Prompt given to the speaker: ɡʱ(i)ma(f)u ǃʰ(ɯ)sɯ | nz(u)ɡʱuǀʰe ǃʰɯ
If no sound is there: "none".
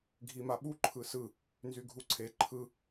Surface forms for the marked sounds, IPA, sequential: i, ɓ, ɯ, y

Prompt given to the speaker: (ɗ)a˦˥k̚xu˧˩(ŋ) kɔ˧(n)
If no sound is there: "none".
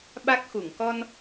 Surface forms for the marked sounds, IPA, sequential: ɓ, ŋ, n

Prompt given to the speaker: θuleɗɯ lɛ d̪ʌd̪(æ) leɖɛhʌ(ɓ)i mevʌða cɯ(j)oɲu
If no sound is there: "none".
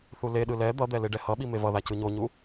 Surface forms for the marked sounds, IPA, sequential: ɛ, ɓ, ɲ

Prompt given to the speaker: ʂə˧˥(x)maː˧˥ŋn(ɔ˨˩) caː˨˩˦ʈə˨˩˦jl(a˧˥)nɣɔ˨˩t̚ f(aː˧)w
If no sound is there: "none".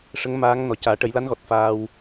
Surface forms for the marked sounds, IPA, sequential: ŋ, ɔ˨˩, a˧˥, aː˧

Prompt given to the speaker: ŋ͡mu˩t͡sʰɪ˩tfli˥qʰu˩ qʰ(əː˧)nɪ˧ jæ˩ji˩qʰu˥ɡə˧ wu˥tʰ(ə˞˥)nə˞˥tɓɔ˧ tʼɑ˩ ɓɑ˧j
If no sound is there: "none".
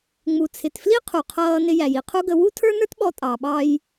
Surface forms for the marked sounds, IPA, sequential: ʌː˧, ə˞˥

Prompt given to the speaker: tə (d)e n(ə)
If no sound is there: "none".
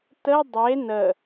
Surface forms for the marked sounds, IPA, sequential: dˤ, ə

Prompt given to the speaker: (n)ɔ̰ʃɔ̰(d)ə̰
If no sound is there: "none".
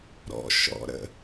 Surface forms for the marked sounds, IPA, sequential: ɾ, ɾ

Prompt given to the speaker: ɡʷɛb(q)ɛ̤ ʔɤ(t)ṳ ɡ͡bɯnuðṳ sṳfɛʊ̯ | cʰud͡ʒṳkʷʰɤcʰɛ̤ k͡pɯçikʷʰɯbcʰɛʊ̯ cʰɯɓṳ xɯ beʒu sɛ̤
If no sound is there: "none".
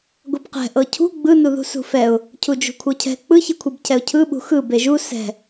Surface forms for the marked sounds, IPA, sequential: q, cʰ

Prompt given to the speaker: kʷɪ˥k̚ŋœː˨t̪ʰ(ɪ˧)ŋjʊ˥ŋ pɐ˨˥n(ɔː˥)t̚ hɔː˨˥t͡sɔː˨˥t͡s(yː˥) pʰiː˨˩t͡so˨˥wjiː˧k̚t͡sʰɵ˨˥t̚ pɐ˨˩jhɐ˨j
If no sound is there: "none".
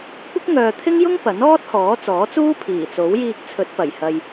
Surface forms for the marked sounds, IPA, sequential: ɪ˥, ɔː˥, uː˥

